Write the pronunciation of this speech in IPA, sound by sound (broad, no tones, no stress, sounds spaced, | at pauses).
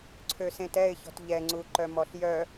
ǀʰ ø s ẽ t ɛ ɪ̯ ç ɔ̤ t ʎ ɛ ŋ͡ǀ u ǃ œ m ɔ ɬ j œ